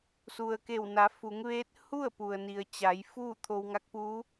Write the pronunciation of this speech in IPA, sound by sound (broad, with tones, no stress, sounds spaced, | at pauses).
s u˩ ə̯ k e˧˩ w n a˩˧ f u˩˧ ŋ ʋ eː˧˥ t̚ h u˥˨ ə̯ p u˩ ə̯ n i˩ ə̯ t͡ɕ a˩˧ j f uː˥˨ t̪ʰ o˧ w ŋ a˧˥ k̚ p uː˧˥